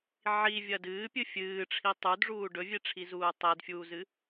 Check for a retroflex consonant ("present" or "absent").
present